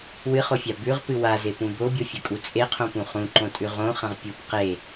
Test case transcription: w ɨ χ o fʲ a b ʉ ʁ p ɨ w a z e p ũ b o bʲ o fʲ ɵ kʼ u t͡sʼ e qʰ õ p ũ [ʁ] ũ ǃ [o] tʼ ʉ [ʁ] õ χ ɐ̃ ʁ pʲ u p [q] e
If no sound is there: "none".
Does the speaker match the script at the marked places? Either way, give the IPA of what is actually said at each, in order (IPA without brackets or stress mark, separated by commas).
χ, õ, ʁ, q